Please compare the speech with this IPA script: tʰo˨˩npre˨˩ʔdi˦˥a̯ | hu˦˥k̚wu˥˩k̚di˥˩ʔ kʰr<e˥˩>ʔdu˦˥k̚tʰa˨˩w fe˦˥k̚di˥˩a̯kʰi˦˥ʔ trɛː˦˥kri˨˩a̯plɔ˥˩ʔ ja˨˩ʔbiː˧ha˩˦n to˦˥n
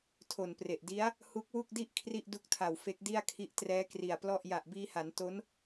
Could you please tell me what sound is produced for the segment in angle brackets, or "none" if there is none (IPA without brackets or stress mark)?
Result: i˥˩